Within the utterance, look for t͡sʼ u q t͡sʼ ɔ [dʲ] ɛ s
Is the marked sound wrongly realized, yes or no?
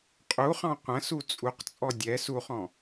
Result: no